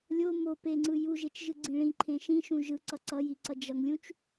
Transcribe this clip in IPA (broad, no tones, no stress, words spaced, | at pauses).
lʲo mo peŋ͡ǀɯ juʒet͡ʃʒɯɡ͡ǀĩ ɭĩǃʰẽ ʃĩʃũ ʒɯǀʌ ǀʌjiǀʌ d͡ʒʌŋlʲũt͡ʃ